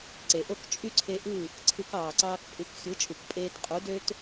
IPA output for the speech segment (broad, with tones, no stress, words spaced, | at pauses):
ǀe˩ʔo˥˩k t͡ʃʼy˥ǀʰe˧ ʔɯ˥˩ | ǀʰɯ˧kɑː˩ǀɑː˧kpʼɯ˩˥k xʲɯ˩˥t͡ʃʼu˩k pʼeː˧tqʼu˩˥ dø˥t